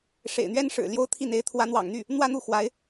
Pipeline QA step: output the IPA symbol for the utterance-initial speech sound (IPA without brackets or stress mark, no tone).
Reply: ʂ